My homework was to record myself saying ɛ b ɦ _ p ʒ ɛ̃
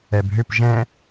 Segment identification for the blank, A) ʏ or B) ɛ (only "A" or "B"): A